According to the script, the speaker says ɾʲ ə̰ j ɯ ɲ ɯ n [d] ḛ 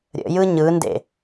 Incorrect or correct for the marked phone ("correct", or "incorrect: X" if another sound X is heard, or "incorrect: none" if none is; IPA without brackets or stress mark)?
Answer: correct